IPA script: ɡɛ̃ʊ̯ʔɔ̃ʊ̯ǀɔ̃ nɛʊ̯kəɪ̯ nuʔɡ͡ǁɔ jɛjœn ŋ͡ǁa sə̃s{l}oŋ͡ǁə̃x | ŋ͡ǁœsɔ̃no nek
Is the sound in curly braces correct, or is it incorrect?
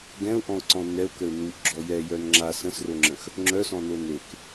incorrect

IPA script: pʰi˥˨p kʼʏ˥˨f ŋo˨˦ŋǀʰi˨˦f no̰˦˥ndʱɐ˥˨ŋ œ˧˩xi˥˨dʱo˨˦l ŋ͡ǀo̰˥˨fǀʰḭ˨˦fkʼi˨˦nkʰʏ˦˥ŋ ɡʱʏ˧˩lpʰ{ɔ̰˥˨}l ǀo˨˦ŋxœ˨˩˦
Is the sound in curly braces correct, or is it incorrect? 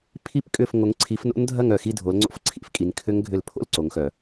incorrect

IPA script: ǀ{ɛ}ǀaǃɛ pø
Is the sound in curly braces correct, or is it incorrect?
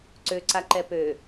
incorrect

